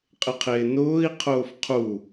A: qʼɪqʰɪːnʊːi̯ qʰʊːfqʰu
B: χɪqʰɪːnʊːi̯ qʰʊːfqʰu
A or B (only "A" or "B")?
A